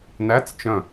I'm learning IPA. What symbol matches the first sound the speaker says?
n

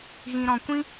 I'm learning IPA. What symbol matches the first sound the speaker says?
ɣ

